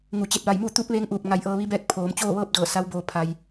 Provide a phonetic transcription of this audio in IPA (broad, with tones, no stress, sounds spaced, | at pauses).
ŋ u˩ t͡ɕ e˧˩ t̚ ʋ a˧˩ j m uː˥˨ t̪ uː˧˥ p̚ ʋ eː˧˥ ŋ ʔ uː˧˩ p̚ ŋ a˧ j ʔ ɤː˧ ʋ i˧˥ b ɛː˥˨ k̚ pʰ oː˩˧ m t͡ɕ oː˥˨ ʋ ɤː˥˨ p̚ d ɤː˧˩ s a˧˥ w b o˧ pʰ a˧ j